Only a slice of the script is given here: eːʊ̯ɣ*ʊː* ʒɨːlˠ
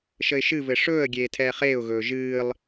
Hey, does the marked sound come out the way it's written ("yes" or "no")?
no